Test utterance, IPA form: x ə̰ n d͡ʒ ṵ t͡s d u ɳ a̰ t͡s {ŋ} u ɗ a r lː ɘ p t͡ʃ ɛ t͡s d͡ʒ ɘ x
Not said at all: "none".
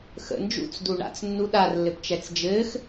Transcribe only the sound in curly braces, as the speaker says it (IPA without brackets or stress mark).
nː